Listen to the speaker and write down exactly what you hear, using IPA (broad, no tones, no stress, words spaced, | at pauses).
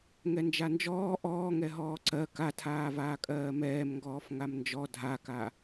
ŋɛnd͡ʒand͡ʒɔː ʔɔːŋɛ ɦɔːǀɜ katʰaːvaː kʼɜːmɛːmŋɡɔːf ŋamnd͡ʒɔ dʱaka